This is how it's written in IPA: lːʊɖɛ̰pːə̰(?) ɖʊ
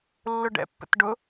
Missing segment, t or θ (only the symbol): t